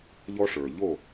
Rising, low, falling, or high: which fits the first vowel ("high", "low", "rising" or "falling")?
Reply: high